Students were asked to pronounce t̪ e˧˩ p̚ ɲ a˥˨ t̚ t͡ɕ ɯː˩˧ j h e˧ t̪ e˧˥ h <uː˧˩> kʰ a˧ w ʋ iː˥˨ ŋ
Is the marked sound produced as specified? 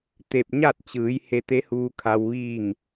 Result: no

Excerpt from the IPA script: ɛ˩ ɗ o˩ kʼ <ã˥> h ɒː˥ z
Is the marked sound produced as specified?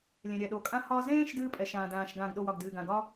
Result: yes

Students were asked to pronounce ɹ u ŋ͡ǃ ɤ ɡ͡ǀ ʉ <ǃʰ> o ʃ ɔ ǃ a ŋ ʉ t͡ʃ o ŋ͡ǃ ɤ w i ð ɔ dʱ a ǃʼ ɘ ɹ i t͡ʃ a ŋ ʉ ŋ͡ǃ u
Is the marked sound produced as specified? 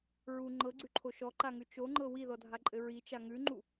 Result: yes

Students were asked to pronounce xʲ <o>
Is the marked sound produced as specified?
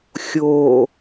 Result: yes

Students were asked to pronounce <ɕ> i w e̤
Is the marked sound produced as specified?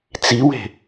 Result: no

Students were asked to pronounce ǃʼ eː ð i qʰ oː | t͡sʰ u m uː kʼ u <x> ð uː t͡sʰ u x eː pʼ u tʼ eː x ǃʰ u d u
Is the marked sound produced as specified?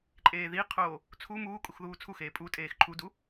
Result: yes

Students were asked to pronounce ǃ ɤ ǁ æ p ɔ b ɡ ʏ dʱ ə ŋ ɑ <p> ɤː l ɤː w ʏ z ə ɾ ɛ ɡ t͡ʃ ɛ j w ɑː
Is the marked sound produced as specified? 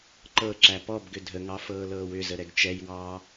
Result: no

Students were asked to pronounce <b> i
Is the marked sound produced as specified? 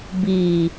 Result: yes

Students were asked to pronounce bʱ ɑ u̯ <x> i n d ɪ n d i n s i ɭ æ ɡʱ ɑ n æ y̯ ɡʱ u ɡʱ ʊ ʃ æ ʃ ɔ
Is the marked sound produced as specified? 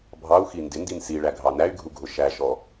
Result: yes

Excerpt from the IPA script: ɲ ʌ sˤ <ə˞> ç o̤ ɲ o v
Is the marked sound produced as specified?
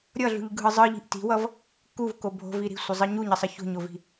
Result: no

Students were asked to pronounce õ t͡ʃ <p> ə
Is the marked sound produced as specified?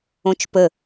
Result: yes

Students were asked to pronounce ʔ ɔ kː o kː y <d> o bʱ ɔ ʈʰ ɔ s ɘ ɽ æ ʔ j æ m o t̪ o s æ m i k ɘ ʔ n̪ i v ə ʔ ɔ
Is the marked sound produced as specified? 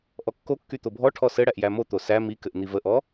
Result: no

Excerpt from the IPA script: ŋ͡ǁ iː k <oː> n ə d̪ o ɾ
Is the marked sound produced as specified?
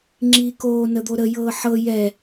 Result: yes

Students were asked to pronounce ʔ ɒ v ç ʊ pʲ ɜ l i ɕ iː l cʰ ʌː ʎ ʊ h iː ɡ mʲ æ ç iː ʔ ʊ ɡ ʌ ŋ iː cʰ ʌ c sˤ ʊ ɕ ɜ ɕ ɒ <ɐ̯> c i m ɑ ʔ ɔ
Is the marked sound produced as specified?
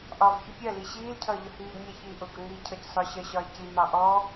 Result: no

